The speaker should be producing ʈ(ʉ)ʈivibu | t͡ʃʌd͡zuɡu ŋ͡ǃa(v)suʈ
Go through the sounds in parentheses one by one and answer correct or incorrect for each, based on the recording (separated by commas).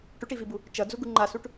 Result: correct, incorrect